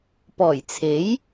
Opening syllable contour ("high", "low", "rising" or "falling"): low